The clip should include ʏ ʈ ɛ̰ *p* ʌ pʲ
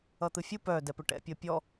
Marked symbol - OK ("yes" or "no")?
no